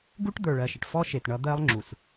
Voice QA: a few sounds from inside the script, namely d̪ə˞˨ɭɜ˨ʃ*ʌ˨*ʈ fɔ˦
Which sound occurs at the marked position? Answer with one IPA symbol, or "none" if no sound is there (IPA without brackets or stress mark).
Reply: ə˨